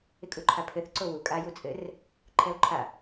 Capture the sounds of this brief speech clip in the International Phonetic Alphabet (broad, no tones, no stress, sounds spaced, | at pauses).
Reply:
ɪ kʼ u ǃʰ a pʰ ɘ θ ǀ o w u kʼ a j u t͡sʼ ɘ r | ǃʰ ɛ o̯ ǃʰ a